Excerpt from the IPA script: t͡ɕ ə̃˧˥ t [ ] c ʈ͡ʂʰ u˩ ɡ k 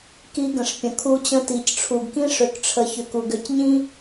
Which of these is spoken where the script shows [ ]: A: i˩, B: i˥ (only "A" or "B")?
A